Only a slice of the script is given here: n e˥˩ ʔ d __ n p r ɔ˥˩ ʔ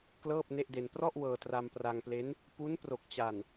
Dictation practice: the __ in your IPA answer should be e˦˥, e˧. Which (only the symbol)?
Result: e˧